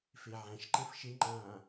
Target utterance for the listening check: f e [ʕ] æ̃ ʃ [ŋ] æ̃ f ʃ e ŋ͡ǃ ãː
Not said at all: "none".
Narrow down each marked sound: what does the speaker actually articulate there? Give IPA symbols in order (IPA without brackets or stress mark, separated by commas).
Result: ʕ, ǃ